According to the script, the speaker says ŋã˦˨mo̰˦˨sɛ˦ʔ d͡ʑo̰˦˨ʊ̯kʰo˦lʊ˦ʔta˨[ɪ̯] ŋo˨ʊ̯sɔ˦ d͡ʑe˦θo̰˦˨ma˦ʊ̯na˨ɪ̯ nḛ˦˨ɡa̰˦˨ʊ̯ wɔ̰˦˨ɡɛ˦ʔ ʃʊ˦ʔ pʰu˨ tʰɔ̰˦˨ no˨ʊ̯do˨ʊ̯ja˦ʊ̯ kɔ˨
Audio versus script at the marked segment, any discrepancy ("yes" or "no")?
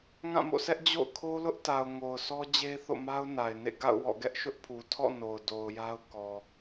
yes